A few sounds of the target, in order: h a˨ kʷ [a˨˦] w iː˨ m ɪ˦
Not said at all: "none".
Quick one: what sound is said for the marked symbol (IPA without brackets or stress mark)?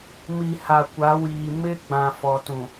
a˨˦